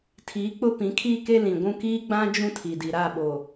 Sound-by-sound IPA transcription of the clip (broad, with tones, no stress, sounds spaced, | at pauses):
tʰ iː˨˦ k͡p ʊ˦ p ĩ˨˦ kʰ iː˦ k e˦ l ĩ˨ ɡʷ ũ˦ k iː˦ ɡ͡b ã˦ d͡ʒ ũ˦ tʰ i˨ d i˨ ɾ a˦˨ ɓ oː˨